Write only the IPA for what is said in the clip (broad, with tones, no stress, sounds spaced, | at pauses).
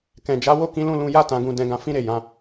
k ɛ̃˨ d͡ʒ a˨˦ w o˦˨ k ĩ˨˦ l ũ˦˨ l ũ˧ j a˦ t ã˧ ɡ ũ˧ d ɛ̃˧ ɡ ã˧ f ĩ˦ ɾ e˦˨ j ã˨˦